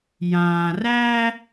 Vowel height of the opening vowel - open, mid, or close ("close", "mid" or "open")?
open